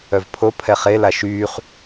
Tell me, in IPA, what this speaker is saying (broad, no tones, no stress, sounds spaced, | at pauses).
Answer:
œ v pʰ o pʰ ɛ χ e l a ʃ yː χ